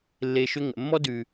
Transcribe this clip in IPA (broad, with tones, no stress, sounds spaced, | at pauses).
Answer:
lː e˧ ʃ ʏ˦ ŋ ə̰˨ mː ɔ˦ d ʉ˨